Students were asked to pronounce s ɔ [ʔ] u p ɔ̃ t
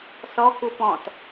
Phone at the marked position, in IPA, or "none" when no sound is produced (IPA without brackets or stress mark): k